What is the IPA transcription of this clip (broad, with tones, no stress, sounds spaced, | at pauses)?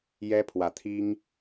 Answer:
j ɛ˦ pʰ w ä˨˦ t̪ʰ i˦ ŋ